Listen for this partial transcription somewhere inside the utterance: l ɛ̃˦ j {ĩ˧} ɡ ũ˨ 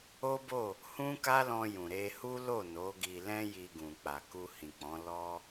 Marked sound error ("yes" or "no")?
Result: yes